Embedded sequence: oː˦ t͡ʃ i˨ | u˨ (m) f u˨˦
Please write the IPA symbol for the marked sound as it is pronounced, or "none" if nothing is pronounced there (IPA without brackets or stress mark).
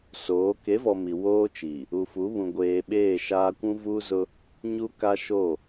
none